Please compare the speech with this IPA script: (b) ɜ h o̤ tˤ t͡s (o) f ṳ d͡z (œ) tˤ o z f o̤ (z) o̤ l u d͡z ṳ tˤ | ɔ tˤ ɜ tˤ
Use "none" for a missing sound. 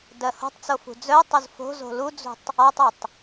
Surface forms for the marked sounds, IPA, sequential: d, o, œ, z

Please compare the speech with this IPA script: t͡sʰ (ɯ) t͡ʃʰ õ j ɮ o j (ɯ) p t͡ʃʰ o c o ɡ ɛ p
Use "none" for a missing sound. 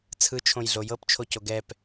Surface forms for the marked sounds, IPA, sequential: ɯ, ɤ

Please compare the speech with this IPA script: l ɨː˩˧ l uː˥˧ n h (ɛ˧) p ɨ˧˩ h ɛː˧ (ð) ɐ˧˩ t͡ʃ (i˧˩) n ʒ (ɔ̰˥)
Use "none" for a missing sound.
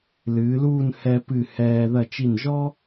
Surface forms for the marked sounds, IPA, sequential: ɛ˧, ð, i˧˩, ɔ˥

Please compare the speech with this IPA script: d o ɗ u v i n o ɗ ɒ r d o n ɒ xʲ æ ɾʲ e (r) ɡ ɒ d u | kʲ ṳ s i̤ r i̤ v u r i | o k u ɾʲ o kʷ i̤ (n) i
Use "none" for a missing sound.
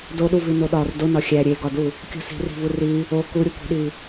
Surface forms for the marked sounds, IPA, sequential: none, ɗ

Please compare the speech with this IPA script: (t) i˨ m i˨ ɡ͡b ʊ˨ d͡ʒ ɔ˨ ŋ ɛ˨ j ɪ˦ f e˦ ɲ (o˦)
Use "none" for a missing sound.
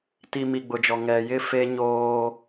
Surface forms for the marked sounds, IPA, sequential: t, oː˦

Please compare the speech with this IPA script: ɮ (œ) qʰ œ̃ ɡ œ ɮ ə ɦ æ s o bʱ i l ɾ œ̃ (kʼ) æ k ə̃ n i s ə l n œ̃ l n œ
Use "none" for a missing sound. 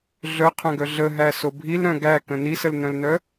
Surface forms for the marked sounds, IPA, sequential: œ, ɡ

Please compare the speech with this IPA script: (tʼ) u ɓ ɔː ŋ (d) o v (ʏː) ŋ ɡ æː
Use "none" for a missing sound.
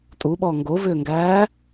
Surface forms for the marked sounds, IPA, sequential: tʼ, ɡ, ʏː

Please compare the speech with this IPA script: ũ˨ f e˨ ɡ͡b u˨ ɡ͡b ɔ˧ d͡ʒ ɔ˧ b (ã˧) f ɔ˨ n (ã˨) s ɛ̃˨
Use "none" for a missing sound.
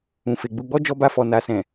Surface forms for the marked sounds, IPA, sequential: a˧, a˨

